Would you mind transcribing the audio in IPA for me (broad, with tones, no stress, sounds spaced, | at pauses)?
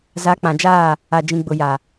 z a˨˦ k͡p ã˨ d͡ʒ aː˦˨ | a˨ d͡ʒ ĩ˨ ɡ͡b ʊ˨ j a˨